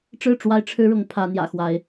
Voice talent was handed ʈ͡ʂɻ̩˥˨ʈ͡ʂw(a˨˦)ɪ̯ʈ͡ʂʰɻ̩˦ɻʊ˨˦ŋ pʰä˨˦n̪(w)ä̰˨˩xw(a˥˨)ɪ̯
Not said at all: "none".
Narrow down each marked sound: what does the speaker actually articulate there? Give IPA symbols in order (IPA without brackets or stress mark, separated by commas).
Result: a˦, j, a˨˦